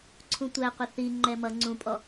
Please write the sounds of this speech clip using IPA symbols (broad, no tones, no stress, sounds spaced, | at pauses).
ǀʰ ũ tʷ æ qʷ ɪ θ i ŋ͡ǃ ɛ m ʌ ŋ͡ǀ ũ pʼ ɔ